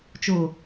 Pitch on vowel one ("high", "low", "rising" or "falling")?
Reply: low